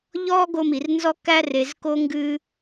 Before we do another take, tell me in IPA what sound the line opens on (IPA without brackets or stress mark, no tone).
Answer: ʎ